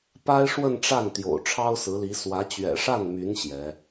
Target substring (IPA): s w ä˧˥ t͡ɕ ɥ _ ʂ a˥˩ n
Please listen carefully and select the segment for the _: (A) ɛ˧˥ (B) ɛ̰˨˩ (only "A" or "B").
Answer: B